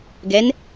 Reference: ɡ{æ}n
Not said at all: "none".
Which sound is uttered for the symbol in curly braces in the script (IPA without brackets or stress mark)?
ɛ